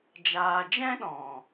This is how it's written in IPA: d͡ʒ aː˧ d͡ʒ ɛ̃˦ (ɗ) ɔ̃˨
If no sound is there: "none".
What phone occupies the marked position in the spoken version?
ɗ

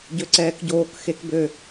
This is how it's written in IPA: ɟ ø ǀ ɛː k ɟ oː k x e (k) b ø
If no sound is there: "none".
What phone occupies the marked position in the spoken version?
k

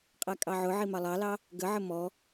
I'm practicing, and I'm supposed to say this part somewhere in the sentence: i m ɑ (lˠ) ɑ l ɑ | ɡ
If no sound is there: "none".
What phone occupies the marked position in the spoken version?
lˠ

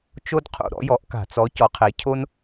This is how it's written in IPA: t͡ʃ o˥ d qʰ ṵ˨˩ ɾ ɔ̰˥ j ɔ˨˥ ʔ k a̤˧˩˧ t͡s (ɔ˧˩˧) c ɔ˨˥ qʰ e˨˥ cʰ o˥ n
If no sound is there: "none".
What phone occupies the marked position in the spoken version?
ɔ˨˥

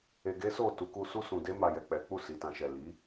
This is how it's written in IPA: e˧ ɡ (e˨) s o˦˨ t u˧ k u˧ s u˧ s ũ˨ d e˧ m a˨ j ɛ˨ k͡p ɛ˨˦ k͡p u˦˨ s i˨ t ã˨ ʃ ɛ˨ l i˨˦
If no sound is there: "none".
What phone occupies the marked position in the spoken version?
e˦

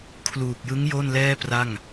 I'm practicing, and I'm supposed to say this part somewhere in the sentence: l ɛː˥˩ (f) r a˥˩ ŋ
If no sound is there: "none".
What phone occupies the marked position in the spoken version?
p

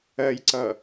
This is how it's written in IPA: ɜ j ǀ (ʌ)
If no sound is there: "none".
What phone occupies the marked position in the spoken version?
ʌ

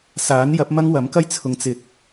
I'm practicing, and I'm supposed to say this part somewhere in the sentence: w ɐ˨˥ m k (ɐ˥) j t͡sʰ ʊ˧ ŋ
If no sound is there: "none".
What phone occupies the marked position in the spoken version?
ɐ˥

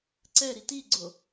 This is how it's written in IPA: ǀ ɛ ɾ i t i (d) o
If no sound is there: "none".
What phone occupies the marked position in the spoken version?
ɡ͡ǀ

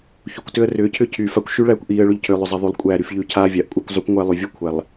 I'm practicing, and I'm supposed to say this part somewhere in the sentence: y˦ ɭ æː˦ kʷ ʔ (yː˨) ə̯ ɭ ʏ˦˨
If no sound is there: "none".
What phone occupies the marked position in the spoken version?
iː˨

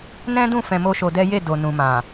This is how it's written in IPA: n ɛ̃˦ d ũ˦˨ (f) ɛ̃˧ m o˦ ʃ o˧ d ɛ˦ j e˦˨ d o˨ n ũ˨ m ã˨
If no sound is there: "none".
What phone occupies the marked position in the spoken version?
f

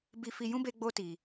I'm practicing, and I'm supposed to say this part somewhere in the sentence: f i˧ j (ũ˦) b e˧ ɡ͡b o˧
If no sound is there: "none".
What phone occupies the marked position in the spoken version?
ũ˦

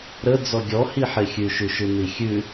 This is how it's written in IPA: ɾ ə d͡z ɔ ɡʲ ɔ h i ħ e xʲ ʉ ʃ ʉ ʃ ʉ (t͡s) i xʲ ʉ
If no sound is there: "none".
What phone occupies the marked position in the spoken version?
n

